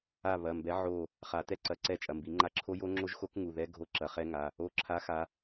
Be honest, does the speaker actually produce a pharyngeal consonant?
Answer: yes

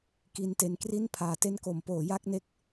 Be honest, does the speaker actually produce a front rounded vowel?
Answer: no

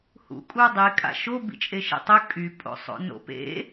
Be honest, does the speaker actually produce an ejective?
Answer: yes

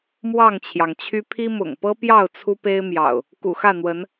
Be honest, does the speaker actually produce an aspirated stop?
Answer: yes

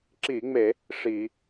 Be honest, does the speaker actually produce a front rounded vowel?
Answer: no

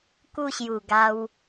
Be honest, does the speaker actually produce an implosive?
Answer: no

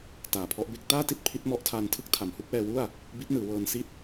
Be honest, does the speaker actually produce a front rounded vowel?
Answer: no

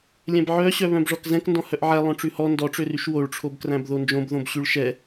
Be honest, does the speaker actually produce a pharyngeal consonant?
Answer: yes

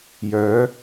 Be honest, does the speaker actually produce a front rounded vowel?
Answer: yes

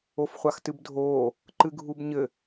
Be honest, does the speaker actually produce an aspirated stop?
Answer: no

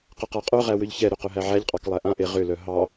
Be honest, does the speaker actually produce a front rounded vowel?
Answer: yes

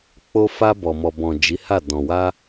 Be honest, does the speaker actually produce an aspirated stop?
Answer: no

